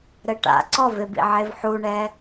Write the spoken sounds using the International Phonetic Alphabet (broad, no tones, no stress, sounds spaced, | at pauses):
ɾ ɘ ʈ a̰ ǀ ɔ v e b ḭ ʕ e v ħ u ɳ ɛ